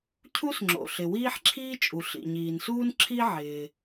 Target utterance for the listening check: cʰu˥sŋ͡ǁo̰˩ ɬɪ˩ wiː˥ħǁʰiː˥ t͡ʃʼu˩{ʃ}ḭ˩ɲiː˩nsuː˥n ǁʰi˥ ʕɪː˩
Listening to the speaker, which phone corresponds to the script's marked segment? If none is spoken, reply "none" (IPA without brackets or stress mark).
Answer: ɬ